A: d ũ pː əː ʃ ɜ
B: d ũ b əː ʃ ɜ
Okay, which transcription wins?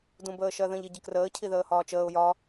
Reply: B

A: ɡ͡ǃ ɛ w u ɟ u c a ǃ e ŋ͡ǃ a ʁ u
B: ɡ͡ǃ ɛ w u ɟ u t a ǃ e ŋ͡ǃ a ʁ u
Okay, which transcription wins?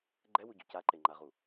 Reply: A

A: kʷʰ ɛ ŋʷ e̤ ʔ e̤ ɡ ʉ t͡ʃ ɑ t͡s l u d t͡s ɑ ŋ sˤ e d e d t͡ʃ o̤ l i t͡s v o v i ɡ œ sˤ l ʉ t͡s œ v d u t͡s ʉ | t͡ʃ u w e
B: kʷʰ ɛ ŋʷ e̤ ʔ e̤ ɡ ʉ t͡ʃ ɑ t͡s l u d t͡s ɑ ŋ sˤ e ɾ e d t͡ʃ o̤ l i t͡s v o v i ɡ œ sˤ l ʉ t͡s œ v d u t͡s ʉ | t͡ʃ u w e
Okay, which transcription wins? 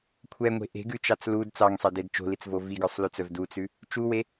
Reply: A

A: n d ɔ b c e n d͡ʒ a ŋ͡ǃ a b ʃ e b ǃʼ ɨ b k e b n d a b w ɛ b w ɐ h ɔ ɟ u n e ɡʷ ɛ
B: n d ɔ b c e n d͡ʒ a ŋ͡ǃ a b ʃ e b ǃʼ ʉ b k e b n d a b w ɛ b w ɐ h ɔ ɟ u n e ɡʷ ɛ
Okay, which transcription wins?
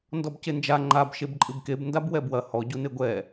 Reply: A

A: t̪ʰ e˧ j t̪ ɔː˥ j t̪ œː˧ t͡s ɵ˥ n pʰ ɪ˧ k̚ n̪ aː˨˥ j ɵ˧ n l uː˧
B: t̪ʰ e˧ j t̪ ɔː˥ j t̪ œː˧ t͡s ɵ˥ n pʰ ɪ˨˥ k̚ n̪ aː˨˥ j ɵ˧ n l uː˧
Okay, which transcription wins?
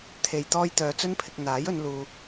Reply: A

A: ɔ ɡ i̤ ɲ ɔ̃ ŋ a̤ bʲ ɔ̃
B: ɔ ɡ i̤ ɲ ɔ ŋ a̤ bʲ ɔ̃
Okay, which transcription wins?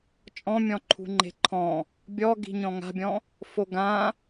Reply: A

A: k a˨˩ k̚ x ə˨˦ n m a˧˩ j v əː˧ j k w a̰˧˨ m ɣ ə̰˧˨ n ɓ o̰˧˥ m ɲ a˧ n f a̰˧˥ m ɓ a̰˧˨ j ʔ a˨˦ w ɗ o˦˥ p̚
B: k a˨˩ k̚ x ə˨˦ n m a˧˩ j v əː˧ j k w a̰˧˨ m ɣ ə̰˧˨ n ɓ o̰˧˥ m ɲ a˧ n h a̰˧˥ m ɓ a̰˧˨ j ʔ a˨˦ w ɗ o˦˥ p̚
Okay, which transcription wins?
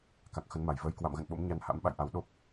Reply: B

